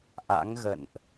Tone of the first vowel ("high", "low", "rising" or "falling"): rising